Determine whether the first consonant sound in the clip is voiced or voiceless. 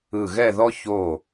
voiced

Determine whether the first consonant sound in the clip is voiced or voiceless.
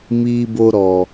voiced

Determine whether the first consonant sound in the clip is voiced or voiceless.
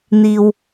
voiced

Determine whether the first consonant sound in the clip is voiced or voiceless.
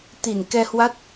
voiceless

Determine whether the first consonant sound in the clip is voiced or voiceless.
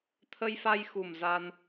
voiceless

